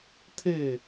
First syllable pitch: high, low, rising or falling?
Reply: falling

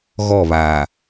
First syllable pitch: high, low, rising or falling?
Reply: falling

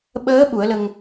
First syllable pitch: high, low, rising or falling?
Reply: rising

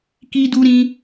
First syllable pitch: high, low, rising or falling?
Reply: high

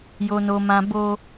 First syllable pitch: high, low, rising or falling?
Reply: high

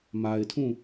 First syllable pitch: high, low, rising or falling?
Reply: low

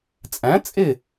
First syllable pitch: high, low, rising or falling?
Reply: rising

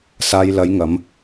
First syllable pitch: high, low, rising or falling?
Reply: low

